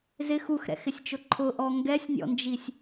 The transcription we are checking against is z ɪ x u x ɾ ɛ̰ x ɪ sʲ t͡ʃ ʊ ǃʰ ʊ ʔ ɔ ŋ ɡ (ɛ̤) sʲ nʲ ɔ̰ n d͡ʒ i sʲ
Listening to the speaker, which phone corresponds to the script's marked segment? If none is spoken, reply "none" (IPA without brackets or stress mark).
ɛ